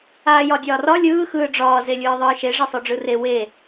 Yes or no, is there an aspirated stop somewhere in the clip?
no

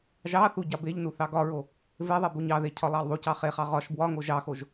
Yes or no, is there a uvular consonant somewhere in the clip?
yes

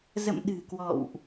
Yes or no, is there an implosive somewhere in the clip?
yes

